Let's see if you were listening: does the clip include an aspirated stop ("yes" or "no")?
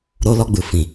no